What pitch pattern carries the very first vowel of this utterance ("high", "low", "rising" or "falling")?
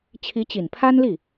rising